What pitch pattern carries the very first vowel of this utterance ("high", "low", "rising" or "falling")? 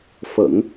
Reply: low